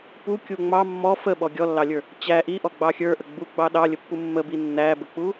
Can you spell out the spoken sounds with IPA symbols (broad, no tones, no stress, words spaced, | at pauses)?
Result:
pukʲu ŋ͡mɑ mːɔ fəɓɔ ɡʲɔlːɑlʲə˞ | t͡ɕæ ʔiʔɔɡ͡bɑ xʲə˞ʔə ɡ͡buɡ͡bɑ ɗɑlʲəpːu mːəbi nːæbək͡pu